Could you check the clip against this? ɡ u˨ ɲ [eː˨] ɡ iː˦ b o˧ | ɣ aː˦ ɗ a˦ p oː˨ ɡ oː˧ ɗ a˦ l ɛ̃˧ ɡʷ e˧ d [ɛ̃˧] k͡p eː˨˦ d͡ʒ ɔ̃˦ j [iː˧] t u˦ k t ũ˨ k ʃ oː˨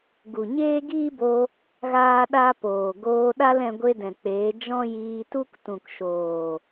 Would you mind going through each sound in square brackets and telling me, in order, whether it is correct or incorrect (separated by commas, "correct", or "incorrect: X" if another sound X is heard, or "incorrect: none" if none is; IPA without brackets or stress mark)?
incorrect: eː˦, incorrect: ɛ̃˨, correct